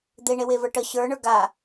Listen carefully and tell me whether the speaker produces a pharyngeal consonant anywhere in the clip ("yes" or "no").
no